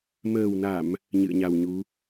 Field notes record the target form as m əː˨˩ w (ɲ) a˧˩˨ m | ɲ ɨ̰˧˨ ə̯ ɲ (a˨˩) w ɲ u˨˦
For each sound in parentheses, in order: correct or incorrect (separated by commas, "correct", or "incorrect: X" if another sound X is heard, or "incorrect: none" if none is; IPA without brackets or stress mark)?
incorrect: n, correct